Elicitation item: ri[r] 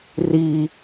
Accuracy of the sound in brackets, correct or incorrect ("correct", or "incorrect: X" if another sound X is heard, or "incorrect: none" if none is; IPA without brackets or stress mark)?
incorrect: none